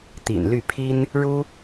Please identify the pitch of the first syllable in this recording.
low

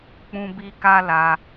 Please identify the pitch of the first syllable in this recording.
high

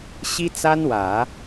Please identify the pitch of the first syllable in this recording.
high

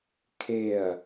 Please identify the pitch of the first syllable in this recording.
falling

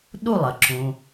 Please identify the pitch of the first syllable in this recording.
falling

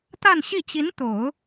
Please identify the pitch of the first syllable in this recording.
falling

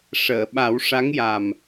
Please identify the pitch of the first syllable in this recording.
low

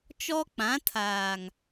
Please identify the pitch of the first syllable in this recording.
high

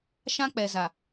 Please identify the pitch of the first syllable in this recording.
high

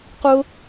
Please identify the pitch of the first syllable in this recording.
high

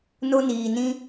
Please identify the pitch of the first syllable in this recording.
high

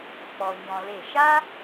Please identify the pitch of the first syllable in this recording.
low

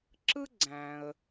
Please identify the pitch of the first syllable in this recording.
high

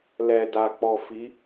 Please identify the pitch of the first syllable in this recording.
low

